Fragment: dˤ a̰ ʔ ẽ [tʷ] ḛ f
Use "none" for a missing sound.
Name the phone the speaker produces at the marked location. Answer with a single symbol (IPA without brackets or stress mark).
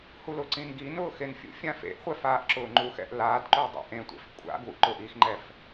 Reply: tʷ